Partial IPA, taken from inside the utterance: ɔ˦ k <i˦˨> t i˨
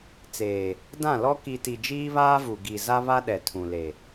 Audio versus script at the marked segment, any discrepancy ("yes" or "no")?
yes